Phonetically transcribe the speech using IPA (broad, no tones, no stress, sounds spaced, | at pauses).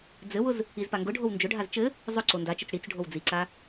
d͡z ɘ w ʊ z | i z p a ŋ ɡ ʊ ɖʱ o w n d͡ʒ ʊ ɖʱ a z t͡ʃ ɘ | zˤ ʊ ǀ o n d a t͡ʃ ɘ t͡s ɽ i t͡s ɖʱ o w d͡z i ǀ a